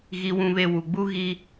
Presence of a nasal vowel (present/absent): present